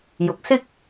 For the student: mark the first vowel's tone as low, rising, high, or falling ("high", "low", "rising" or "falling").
rising